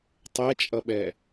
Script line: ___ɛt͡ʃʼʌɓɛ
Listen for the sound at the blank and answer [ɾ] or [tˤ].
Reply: tˤ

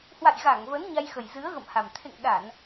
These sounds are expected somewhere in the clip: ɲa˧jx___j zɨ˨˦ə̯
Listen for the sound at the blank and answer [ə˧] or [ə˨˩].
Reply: ə˨˩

